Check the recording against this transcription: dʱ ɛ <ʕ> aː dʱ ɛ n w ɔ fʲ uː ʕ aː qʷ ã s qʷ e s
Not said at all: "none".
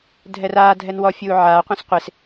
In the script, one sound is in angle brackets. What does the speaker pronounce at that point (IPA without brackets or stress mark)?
r